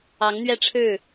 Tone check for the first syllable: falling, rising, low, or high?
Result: rising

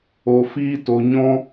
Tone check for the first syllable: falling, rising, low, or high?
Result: low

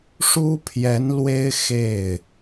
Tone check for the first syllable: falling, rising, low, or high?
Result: high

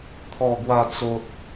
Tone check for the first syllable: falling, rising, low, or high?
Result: low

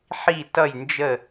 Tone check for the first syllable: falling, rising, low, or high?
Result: falling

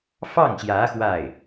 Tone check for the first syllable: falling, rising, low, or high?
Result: falling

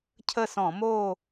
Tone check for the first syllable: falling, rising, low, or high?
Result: falling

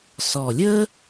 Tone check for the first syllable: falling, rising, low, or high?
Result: low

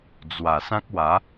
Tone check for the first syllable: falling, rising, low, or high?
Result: low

